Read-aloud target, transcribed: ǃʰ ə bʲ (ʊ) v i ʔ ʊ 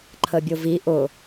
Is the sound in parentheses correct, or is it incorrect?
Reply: correct